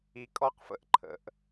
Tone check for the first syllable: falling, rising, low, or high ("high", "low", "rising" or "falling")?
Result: low